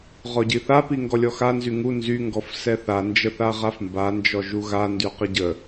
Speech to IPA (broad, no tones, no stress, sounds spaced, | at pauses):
ʁ ɔ ɟ i θ a p i ŋ ɡ ɔ lʲ ɔ x a n z y ŋ u n z y ŋ ɡ ɔ f s ɛ θ a n d͡ʒ ə θ a ʁ a f m b a n d͡ʒ ɔ ʒ u ɣ a n d y q ə ɟ ə